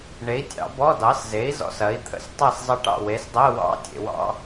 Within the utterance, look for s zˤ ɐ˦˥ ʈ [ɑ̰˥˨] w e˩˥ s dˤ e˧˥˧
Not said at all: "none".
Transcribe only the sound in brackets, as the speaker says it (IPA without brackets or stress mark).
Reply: ɑ̰˥˨